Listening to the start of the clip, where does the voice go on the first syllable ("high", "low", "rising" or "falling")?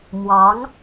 rising